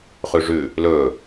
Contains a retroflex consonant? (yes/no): yes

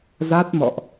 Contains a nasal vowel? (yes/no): no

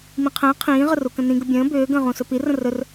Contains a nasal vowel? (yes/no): yes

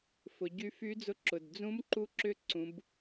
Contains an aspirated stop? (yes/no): no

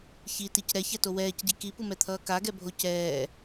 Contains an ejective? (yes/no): no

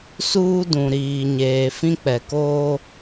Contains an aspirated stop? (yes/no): no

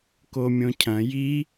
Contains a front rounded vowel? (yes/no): no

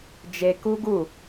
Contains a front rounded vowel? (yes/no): no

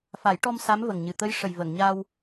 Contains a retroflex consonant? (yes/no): yes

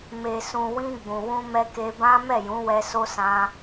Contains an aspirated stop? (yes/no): no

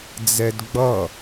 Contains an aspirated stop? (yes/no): no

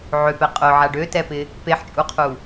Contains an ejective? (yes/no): yes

